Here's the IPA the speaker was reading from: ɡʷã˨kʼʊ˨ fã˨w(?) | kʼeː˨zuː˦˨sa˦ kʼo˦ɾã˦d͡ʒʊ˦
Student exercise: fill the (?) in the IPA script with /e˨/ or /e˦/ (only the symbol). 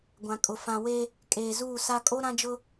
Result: e˦